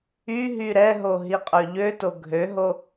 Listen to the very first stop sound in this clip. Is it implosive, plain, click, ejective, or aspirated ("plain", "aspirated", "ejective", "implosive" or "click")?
ejective